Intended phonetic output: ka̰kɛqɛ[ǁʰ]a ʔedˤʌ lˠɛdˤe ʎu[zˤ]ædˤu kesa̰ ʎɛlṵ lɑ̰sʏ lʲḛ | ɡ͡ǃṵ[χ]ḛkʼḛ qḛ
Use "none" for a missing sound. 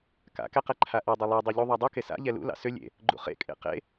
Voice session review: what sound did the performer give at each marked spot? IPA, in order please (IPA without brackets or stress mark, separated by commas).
ǃʰ, ðˤ, χ